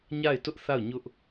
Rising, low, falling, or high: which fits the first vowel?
falling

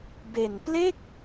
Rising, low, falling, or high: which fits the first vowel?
low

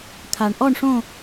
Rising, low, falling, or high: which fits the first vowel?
low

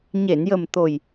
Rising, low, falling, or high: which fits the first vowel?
low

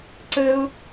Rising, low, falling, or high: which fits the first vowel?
high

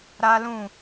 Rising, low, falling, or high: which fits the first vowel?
high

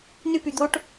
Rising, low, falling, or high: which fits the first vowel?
high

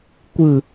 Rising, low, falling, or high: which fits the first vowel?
low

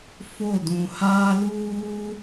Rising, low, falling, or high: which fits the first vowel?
falling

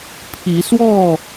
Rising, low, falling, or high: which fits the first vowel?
rising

